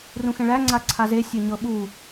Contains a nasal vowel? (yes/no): yes